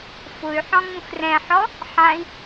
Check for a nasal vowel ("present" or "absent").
present